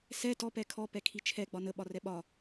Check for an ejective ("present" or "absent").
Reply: absent